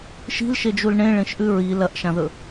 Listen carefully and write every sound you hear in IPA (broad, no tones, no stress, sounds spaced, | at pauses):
ʃ i̤ l ʃ e d͡ʒ u l ɳ ẽ ɭ ẽ ʃ ʔ ʉ ɹ i l ɐ ʔ ʃ ã ð ɵ